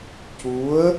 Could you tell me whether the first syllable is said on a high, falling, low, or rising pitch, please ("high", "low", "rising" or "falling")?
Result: rising